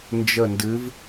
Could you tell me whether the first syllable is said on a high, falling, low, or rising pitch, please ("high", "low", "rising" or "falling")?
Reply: falling